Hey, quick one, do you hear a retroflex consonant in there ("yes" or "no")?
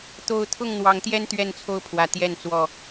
no